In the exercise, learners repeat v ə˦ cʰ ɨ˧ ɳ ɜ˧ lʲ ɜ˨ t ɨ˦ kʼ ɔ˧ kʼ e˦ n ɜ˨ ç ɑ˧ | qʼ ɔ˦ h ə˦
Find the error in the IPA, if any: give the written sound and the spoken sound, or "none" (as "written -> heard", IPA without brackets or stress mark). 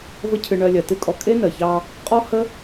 none